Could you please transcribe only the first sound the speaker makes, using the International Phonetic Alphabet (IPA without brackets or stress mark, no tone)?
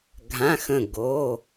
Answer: ɡʱ